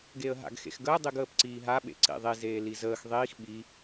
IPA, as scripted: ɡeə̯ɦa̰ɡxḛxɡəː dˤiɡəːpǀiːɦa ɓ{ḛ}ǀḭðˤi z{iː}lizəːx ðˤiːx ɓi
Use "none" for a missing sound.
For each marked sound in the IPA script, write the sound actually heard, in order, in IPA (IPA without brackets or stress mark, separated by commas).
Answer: ḛ, eː